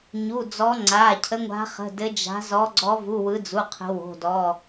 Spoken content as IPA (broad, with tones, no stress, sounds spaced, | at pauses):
ɲ u˩˧˩ d͡z ɔ˨˦ ŋ͡ǀ aː˩˧˩ cʰ ə˨˦ ŋʷ a̤˨˦ χ ə̤˩˧˩ d ɘ˨˦ d͡ʒ a̤˨˦ z ɔ˨˦ ɡ͡ǀ ɔ˨˦ v u˩˧˩ w ɯ˨˦ d͡z u˩˧˩ qʰ ə̤˨˦ w o̤˩˧˩ d ɔ˩˧˩